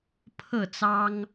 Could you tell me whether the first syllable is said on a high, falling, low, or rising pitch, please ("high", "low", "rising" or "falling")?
falling